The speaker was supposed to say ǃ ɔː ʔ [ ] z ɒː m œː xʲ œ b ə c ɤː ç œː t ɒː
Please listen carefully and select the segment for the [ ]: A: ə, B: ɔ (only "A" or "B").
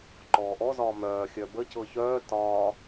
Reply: B